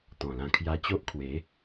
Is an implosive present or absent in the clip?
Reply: absent